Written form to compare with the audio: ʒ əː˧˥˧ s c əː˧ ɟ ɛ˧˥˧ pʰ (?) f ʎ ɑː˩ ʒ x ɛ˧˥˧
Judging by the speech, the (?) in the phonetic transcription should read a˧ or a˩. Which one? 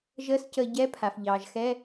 a˩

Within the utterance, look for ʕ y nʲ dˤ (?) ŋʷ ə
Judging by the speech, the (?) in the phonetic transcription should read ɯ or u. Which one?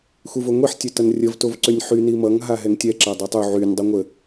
ɯ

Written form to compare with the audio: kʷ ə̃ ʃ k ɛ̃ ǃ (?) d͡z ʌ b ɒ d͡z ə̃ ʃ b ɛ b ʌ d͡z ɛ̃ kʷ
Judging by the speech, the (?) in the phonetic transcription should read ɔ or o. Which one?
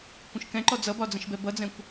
ɔ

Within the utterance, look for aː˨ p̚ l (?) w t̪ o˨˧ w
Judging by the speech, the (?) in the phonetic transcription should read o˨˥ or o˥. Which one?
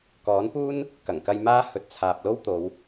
o˥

